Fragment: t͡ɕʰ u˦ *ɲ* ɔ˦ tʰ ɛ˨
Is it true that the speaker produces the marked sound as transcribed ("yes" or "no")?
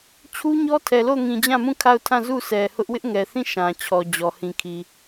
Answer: yes